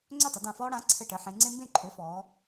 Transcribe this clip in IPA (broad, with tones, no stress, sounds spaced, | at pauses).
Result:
ŋ͡ǀ ø˥˨ tˤ ɘ˩˧ d ã˧˩ f ɔː˦ ɽ ã˩˥ ǀʰ ɘ˧˩ ʈ ə˩˧ ħ ẽ˩˧ ŋ͡ǀ ẽ˦ m b ẽ˥˨ ǃʰ ø˩˥ f ɔː˩˧